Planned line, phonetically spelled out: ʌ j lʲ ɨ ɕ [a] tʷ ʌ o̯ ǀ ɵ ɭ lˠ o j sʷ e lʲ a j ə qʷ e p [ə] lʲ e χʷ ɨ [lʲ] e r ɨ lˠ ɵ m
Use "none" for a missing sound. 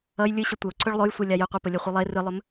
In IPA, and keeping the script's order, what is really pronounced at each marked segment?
ə, ə, lˠ

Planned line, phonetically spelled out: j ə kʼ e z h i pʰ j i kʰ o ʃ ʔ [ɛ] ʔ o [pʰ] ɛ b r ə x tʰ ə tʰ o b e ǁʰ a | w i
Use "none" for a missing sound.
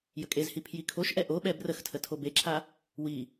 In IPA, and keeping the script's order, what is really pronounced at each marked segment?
ɛ, ɓ

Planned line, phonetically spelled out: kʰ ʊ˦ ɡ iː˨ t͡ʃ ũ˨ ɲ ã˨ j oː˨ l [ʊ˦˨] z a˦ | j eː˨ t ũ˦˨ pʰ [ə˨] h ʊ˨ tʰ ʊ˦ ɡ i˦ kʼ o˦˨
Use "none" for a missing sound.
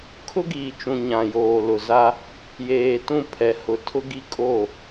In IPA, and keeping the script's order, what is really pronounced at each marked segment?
ʊ˨, ɛ˨

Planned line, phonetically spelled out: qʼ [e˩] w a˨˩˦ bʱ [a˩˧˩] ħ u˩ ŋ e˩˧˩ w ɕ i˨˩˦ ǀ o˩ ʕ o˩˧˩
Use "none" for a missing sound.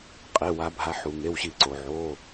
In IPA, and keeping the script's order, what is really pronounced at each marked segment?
e˩˧˩, a˩˧˩

